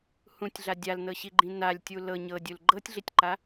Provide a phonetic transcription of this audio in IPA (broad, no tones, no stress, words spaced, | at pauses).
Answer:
hũtʲɮa dʲalnɤɕiɡ͡ǃĩ nalʲtʲu lɤ ɲɤdʲul ɡ͡ǃɤtʲɮitʲǃa